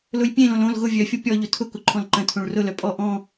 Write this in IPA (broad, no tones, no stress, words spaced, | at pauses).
lʊjpʲẽlõl õl ɣʊ vʲœfʲo pʲɔʎʊ tʰʊkʊ ǃʰɔ̃lǃə̃tʰõɭ rʊlœ pʼɔ ʔɔ̃